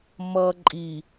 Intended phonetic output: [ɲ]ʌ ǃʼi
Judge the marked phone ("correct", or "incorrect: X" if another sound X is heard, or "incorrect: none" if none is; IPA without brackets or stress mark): incorrect: m